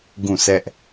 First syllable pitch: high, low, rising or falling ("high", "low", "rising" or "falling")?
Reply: falling